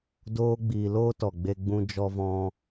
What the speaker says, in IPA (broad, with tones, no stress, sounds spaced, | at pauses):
d oː˦ ɡ͡b iː˧ l oː˦ t ɔ˨ ɡ͡b e˧ ɡ͡b ũ˧ d͡ʒ ɔ˧ v ɔ̃˧